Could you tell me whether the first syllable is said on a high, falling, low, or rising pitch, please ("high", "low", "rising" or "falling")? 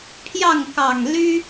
falling